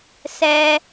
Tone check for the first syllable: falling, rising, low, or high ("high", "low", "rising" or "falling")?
high